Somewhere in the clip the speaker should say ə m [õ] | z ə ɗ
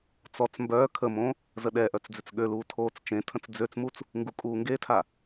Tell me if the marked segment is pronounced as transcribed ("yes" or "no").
yes